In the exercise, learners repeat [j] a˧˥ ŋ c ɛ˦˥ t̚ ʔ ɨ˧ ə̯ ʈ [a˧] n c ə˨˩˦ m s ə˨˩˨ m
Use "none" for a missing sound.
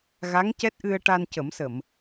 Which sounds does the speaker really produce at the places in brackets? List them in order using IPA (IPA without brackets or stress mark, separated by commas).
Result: ɣ, a˧